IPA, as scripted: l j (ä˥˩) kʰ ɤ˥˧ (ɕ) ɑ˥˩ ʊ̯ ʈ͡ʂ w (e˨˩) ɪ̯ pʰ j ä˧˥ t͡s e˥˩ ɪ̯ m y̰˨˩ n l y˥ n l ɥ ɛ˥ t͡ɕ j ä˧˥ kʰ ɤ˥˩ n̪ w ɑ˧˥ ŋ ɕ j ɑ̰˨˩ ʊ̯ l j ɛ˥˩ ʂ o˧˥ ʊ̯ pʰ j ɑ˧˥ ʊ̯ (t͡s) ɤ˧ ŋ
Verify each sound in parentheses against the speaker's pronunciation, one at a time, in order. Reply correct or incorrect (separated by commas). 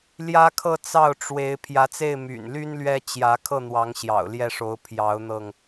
incorrect, incorrect, incorrect, incorrect